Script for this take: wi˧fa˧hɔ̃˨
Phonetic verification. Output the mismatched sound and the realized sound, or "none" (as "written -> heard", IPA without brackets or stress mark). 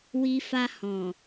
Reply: none